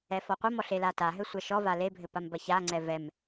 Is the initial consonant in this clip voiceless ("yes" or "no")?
yes